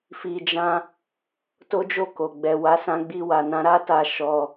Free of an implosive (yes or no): yes